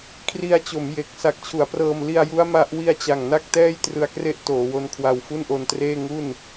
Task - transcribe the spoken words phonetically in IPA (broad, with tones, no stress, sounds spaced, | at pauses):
kʰ r i˧ a̯ t͡ɕ o˩˦ m j e˨˩ k̚ s a˨˩ k̚ t͡ɕʰ u˩˦ a̯ p r ɤː˧ m l i˧ a̯ j u˦˥ a̯ m a˦˥ ʔ w i˧ a̯ t͡ɕ a˨˩ ŋ n a˥˩ k̚ t ɛː˥˩ j t r ɯ˧ a̯ k r e˥˩ ʔ t oː˩˦ w o˦˥ n kʰ w a˧ w f u˥˩ n ʔ o˧ n t r eː˥˩ ŋ u˥˩ n